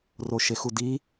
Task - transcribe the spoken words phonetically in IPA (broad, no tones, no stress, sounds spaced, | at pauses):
r o ʃ e x u d i